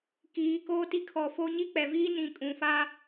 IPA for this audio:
kiː˨˦koː˦ti˦ kʰɔ˨ fo˦ ɲi˦k͡pɛ˨viː˦ nĩ˨ kʼũ˨fa˦

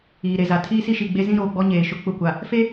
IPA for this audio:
iː˨ɾe˨za˨ tʰiː˦si˦ʃi˨ɡ͡be˦ zĩ˦ɾoː˨ɡ͡bɔ˦ ɲeː˨ʃʊ˦ k͡pʊ˦˨kʷa˨ | fe˦

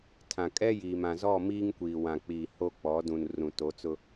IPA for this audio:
tʰã˨kʼɛ˦jiː˨m ã˨zɔ˦˨miː˦ŋ kʷiː˨wã˨k͡piː˨ ho˦k͡pɔ˨˦ dũ˨nrũ˨to˨˦t͡sʊ˦

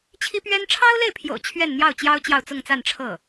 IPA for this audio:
t͡ɕʰi˥pɥɛ˥n ʈ͡ʂʰɑ˥ʊ̯le˥˩ɪ̯pʰjo̰˨˩ʊ̯ t͡ɕʰɥɛ˥˧nn̪jɑ˥˩ʊ̯t͡ɕjɑ˥ʊ̯ t͡ɕjɑ˥˧ʊ̯t͡sʊ˥˧ŋt͡sa˥˧n ʈ͡ʂʰɤ˥˩

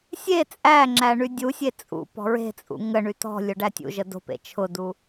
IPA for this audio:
sʲe t͡sʼæŋ͡ǁæ ɳydʲusʲe t͡sʼṵ pɔ̤ɹe̤t͡sʼṵ ŋəɳy tɔ̤lʲʊ ɖætʲṵʒə do̤pḛ t͡ʃʰʊdu

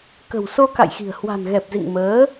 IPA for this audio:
kə̤˨˩wso˧ka̰˧˨jxi̤˨˩ə̯ hwa̤˨˩nɣɛ˨˩p̚zḭ˧˨ŋ məː˨˦

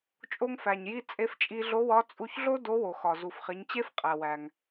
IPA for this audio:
t͡ʃʼo˧ŋfæ˩ɲji˧ t͡sʼe˧ft͡ʃʼi˧ɮo˧˥wɒ˧˥ t͡sʼu˧çɮo˥ do˧˥wo˩xɒ˩ zu˩fχi˩˧ɲt͡ɕe˥fqʼæ˩ wæ˩ŋ

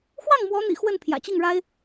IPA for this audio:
xwɑ˥˩ŋmwɔ˧˥n̪ḭ˨˩ xwə˥˩n pʰjä̰˨˩t͡ɕi˥˩ŋɻa˥ɪ̯

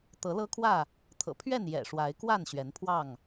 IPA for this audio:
t̪ɤ˨˦lɤ˦kʰwä˥˨ | t̪ʰɤ̰˨˩pʰɥɛ˥˨n jɛ̰˨˩ʂwa˨˦ɪ̯kwa˥˨n ɕɥɛ˨˦npʰwɑ˥˨ŋ

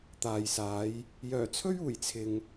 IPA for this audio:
t̪aː˨jsaː˨˧j | jœː˨˩t͡sʰɵ˥ɥuː˨˩j t͡sʰɪ˧ŋ

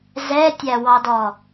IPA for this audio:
zɛtʲæwɑdɔ

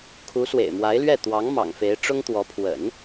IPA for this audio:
kʰu˧˥ swḛ˨˩ɪ̯mwa˧˥ɪ̯lɥɛ˥˩ t̪wɑ˧˥ŋ mɑ̰˨˩ŋfe˧˥ɪ̯ ʈ͡ʂʊ˥ŋt̪wɔ˧˥ pʰwə̰˨˩˦n

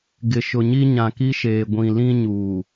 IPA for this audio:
ɡɪ˨ʃʊ˨ɲi˦ ɲã˨ki˦ʃeː˨ ɡʷĩ˨lĩ˦ɲuː˨

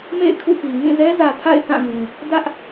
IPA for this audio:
mḛ˦˨ɪ̯kʰṵ˦˨pi˨ ŋĩ˦˨zɛ˦zä˨ tʰa̰˦˨ɪ̯θã˦˨ɡũ˨ | dä˦ʔ

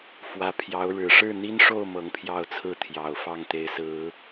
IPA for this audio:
fwä˧˥ pʰjɑ˧˥ʊ̯ ɻɻ̩˨˩ʂɻ̩˥˩n̪i˥nʂo˥˩ʊ̯ mɤ˧˥ŋpʰjɑ˥˩ʊ̯t͡sʰɹ̩˥ t̪ʰjɑ˨˩ʊ̯fɑ˥˩ŋ t̪e˧˥ɪ̯sɹ̩˨˩˦

